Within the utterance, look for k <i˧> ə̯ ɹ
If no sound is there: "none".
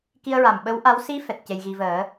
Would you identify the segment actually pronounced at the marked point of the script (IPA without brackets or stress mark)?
i˧